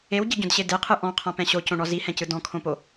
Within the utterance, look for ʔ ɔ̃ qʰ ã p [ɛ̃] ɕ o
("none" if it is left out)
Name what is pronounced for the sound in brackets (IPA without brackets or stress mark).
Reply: ɛ̃